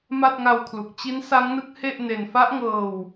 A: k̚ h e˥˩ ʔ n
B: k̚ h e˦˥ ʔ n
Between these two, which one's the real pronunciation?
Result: A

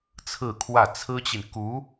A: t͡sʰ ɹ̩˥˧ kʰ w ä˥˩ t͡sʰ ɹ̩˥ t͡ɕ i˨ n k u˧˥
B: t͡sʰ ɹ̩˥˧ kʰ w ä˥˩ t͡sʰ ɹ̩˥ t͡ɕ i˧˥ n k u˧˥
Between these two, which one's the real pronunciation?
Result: A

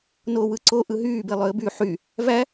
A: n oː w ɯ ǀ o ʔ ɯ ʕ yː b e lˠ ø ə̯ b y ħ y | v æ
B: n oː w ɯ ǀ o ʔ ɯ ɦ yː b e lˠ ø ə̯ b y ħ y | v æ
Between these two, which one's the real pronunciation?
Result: B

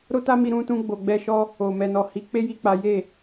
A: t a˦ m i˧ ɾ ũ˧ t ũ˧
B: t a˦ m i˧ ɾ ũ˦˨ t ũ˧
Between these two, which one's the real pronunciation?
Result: A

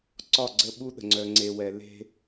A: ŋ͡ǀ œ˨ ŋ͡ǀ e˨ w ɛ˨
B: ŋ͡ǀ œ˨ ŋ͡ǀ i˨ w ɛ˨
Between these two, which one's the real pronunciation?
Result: A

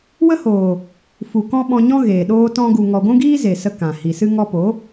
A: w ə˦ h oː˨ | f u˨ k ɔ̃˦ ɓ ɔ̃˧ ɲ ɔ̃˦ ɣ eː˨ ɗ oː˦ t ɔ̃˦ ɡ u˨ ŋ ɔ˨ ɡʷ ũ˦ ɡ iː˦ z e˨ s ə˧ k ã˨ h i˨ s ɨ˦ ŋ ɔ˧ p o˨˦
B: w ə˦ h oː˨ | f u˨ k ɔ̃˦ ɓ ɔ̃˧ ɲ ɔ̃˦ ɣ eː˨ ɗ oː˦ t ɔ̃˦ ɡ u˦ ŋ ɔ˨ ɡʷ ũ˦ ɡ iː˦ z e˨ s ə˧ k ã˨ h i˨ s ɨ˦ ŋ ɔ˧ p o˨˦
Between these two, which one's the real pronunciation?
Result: A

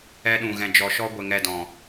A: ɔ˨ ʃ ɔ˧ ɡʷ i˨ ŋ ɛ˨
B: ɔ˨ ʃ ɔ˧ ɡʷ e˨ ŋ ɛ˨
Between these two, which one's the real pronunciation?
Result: B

